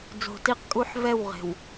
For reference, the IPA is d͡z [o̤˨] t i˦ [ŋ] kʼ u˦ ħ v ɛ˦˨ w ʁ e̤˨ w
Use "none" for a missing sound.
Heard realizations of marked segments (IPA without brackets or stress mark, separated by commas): o̤˨, q